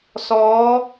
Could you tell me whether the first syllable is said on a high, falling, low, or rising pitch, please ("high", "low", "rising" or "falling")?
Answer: rising